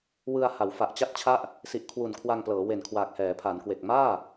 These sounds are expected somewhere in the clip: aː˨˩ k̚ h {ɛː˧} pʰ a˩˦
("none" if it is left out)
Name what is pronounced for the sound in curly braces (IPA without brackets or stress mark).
ɛː˩˦